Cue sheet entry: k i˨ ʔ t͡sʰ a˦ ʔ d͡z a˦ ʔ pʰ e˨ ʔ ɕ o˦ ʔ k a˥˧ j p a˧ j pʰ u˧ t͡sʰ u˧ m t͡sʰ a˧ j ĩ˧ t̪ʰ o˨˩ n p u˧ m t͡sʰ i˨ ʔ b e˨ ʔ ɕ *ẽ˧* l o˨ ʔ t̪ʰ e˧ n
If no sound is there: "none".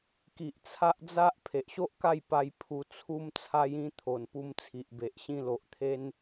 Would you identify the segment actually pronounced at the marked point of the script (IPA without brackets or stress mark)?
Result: ĩ˧